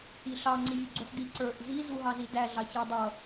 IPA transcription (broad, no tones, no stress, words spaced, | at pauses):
iɬɑ ŋ͡ǀivʲʊɡ͡ǀuħdi ǀə˞ʔ zi zuɦɑzidæ ɮɑçɛ dˤʌ